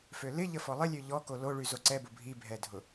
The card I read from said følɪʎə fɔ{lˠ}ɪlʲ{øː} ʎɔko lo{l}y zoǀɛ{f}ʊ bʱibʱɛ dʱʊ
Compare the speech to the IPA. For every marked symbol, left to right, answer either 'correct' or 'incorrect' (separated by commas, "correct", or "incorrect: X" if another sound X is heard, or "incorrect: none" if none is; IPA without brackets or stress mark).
correct, incorrect: ø, incorrect: ɭ, incorrect: b